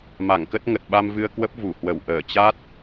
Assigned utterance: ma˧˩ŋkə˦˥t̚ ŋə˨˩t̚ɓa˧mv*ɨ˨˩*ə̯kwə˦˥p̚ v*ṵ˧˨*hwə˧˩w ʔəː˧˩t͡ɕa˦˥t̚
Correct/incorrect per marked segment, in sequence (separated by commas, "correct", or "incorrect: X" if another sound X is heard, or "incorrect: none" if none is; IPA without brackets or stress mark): incorrect: ɨ˧, incorrect: u˧˩